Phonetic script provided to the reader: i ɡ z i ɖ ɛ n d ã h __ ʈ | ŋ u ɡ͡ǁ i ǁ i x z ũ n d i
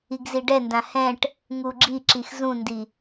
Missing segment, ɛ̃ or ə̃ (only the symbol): ɛ̃